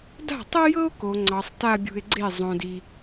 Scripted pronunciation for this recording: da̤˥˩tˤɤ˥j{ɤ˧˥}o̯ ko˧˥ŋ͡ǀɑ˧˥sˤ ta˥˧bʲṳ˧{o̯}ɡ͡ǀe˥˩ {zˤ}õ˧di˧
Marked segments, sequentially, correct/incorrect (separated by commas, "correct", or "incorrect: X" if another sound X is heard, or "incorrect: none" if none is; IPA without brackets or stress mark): incorrect: ɤ˥, incorrect: e̯, correct